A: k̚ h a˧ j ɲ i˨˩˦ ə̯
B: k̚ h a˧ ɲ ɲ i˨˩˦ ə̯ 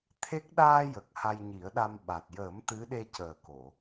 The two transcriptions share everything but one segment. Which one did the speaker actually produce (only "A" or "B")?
A